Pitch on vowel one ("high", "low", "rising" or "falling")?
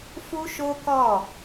high